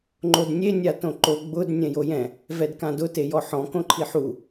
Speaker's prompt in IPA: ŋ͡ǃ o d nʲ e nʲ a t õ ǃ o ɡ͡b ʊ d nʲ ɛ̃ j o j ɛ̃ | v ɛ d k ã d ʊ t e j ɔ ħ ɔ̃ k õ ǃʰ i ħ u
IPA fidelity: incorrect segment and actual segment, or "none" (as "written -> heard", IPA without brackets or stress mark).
none